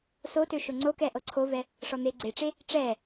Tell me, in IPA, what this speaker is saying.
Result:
s o t ø ʃ o ŋ͡ǀ o k ɛ ʔ ɤ ǀʰ o v ɛ | ʂ ɔ n̪ e ɡ͡ǀ e ʈ͡ʂ e | ʈ͡ʂ ɛ

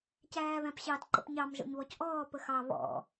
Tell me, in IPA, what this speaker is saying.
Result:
c æː β æ̃ p ɕ ɑ d ǃ ə̰ p ɲ ɑ m ʒ ɔ̰ ɲ β ɔ c ʔ ɔː p ə x ɑ β ɔ̰

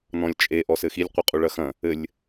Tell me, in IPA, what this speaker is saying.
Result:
n ɔ̃ lʲ t͡ʃʼ e ʔ ɔ s ɘ x i lʲ qʷ ɘ qʼ u ɭ ɐ x ɐ̃ | ɘ lʲ

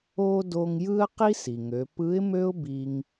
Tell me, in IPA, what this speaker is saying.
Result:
o˥ d o˧ ŋ j ɯ˥ ə̯ q i˥ s i˩ ŋ ø˩˧ p ɯ˧˥ ɪ̯ m ø˥ ʊ̯ b i˧ ŋ

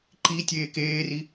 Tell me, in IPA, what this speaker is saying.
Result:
ǃ i tʲ eː k eː r i

